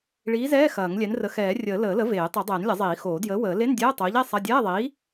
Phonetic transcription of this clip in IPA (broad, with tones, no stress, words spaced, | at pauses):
ɭiː˨˥zɛː˧˥˧ xɐː˨˩˦ŋlʲɛ˨˥nrə˨˥ xɛː˨˩˦rʲəː˨˩˦ ləː˨˩˦lə˨˥veː˨˩˦ tˤɛ˨˩˦dˤɛː˨˩˦nlʲɐ˨˩˦zˤiː˨˩˦ xoː˨˩˦djəː˨˥ wəː˨˩˦ le˧˥˧n dʲɛː˧˥˧tˤoː˨˥ʎe˧˥˧ sˤɐ˧˥˧ dʲɛː˧˥˧ðˤiː˨˥